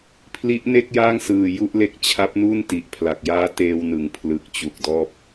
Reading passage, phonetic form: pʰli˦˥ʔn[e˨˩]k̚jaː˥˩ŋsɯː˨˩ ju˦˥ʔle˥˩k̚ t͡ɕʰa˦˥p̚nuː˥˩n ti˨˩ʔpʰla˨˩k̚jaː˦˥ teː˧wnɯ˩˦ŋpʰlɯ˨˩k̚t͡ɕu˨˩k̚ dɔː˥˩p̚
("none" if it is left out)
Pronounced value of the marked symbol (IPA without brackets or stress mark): e˥˩